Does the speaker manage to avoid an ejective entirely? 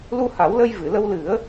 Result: yes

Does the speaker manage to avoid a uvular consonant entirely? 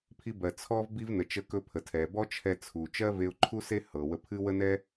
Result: yes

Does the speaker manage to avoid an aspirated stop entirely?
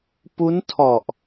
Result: no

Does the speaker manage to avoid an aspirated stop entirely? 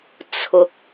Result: no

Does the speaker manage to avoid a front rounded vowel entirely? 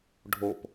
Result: yes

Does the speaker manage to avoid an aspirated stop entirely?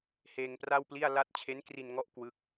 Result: no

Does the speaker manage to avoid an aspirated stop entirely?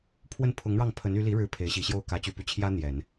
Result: no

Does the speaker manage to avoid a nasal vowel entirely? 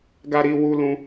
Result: no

